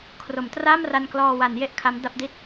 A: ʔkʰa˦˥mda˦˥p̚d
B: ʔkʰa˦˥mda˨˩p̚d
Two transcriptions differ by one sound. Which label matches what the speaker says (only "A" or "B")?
A